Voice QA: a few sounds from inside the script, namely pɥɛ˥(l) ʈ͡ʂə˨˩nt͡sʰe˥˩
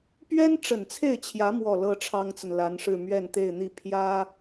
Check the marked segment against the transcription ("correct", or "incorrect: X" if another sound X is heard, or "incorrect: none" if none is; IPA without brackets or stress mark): incorrect: n